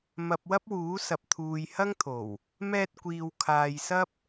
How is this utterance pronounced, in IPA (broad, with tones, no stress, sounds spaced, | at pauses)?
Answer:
m ɐ˨ p̚ w ɐ˥ p̚ w uː˨˥ s ɐ˨ p̚ t̪ʰ uː˨ j h ɐ˥ ŋ t̪ʰ o˨˩ w | m ɛː˧ t̚ kʷ iː˨ w kʰ aː˨ j s ɐ˥ p̚